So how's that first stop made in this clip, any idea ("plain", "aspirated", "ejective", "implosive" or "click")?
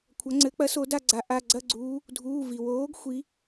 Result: aspirated